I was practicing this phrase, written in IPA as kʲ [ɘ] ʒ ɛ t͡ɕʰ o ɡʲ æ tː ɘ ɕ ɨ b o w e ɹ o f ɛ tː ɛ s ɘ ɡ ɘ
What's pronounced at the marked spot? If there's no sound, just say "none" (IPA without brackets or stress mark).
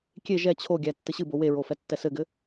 e